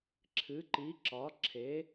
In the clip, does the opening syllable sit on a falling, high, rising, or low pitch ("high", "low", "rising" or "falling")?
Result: rising